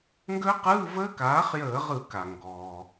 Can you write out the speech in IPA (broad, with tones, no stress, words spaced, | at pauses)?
ŋɡə˦˥qɯː˧˥˧ vəː˦˥kaː˩˥χjəː˧˩˧ʁɯ˧˩˧ ka˩ŋɡɔː˩